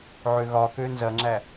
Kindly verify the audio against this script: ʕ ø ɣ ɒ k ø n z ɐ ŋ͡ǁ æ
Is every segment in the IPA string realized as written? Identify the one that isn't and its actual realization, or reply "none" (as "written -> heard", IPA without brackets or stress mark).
none